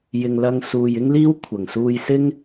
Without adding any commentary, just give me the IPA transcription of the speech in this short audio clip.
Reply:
j ɪ˨ ŋ l ɐ˧ ŋ s uː˨ j ɪ˥ ŋ l iː˥ w kʷʰ ɐ˨˩ ŋ s uː˧ j s ɪ˥ ŋ

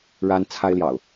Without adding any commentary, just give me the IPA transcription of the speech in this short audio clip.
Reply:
ɻ a˦ n t͡sʰ a˦ ɪ̯ l j ɑ̰˨˩ ʊ̯

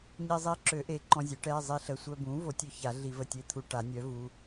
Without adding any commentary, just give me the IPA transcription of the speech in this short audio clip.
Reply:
ɲ i˧ zˤ i˧˥ ǁ ø˨˩˦ ʔ e˩˥ ǃ ɔ̃˧ zʲ ø˩˥ ʈ ɛ˩˧˩ zˤ i˧ ɬ ə˩˧˩ sʷ œ˧ b ũ˩˥ v o˩˥ tʲ ø˧ ç a˨˩˦ ɮ i˨˩˦ v ə˩˧˩ tʲ e˧ t̪ʰ u˧ ʈ a˨˩˦ nʲ œ˩˥ v u˩˧˩

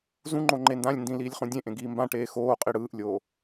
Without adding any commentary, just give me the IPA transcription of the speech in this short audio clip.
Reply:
z ũ ŋ͡ǃ o ŋ͡ǃ e n d ã lʲ n d ĩ l iː lʲ χ ũ dʲ ẽ ʔ ẽ ɡ iː m b ã ʈ eː x oː qʼ i ɽ ɯː ʔ lʲ oː

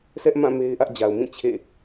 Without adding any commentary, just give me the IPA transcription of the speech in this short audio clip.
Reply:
sʰ ɛ˦ ʔ m ã˦˨ m e˦ ɪ̯ ʔ ä˦ ʔ d͡ʑ a˨ ʊ̯ m ĩ˦˨ t͡ɕʰ ḛ˦˨

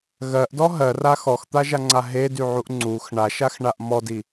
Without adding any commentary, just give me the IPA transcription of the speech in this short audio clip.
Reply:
ɣ ɜ ʔ d ɔ ɦ ɜ r a x ɔ x t̪ a ʒ a ŋ͡ǀ a ɦ e d y ʕ u ʔ ŋ͡ǀ u x ɳ a ʃ a x ɳ a ʔ m ɔ d i

